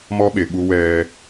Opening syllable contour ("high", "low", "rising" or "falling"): high